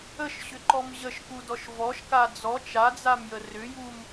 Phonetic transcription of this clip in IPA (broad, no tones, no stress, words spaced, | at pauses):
əʃɕʏǃɔm ʑəʃkudɔʃ vɔʃka d͡zɔ t͡ʃad͡zamjə rʏjum